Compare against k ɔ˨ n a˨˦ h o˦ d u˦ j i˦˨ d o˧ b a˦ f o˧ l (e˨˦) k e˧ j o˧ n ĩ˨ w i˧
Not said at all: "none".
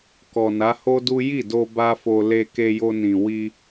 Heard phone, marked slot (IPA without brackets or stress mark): e˧